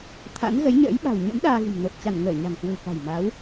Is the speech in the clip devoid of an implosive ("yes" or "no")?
no